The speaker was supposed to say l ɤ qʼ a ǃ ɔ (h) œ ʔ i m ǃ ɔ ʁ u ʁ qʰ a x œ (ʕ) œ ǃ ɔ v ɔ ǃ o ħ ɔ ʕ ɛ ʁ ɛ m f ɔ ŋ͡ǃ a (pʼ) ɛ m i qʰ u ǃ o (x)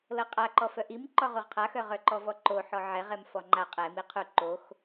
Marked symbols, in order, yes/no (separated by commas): no, no, no, yes